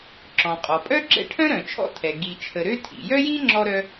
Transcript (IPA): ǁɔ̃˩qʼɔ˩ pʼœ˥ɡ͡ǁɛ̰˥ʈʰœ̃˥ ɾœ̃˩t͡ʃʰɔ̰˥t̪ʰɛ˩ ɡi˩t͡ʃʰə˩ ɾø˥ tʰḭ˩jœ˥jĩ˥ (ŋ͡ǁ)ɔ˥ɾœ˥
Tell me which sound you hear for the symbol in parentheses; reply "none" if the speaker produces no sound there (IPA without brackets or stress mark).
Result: ŋ͡ǁ